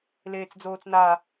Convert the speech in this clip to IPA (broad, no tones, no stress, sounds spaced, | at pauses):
l eː t͡s d͡z oː t͡s n a